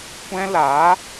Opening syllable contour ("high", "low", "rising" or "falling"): high